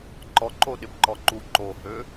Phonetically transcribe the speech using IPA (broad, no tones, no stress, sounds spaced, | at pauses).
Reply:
ǃ ɔ ǃ o ɗ ɪ b ǃ ɔ ǃ u ǃ o h ø